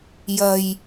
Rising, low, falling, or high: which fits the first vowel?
low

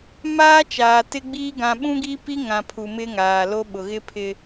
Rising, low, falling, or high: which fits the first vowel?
high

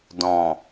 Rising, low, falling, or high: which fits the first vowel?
low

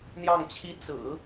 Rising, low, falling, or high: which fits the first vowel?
falling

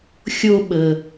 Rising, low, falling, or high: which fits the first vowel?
high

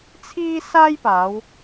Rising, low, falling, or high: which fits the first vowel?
high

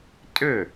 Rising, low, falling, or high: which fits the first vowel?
falling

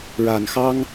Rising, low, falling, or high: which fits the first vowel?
low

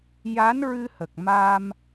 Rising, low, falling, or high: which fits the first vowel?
rising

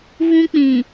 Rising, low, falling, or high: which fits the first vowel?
high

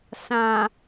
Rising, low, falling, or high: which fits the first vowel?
low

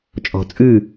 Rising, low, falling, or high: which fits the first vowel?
low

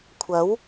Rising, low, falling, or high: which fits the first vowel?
rising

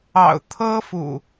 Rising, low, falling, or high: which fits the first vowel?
low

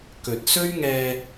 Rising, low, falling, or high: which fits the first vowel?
low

